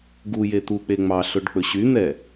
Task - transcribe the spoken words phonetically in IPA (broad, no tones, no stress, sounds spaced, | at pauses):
ɡ u j e t̪ u k͡p e ŋ͡m ɑ ɬ ɵ ɖ k͡p ɵ ɕ y n̪ ɛ